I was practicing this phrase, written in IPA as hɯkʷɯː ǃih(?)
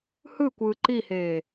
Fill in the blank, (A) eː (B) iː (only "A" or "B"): A